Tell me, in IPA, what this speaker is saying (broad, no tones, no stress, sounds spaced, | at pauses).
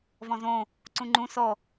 v ɔ̃ z õ | ǀ ũ ŋ͡ǃ ũ s ɔ